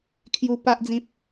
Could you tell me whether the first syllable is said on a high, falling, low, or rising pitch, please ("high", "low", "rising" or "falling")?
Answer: high